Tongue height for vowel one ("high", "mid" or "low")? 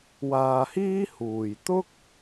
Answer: low